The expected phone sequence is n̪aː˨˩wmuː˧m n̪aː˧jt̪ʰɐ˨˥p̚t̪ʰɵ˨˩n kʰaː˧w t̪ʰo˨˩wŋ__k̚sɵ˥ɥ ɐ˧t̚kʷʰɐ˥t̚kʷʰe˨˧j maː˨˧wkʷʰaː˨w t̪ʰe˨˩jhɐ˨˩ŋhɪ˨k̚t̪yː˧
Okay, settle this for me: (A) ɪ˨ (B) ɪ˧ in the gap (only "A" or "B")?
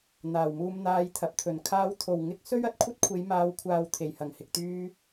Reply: B